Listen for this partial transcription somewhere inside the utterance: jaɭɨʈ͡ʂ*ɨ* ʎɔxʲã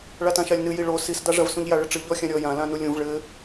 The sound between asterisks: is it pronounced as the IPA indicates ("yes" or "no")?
yes